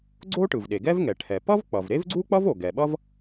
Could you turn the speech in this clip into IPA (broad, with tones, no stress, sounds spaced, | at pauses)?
ɡ͡ǀ o˥ ʈ ɯ˩ v ɗ e˩ ɡ ɛ˥ v ŋ ɛ˩ ʈʰ ɛ˩ p ʌ˥ v k͡p ʌ˩ v ɾ e˥ v ɡ͡ǀ u˥ k͡p ʌ˥ v o˩ ɡ ɛ˩ ɓ ʌ˥ v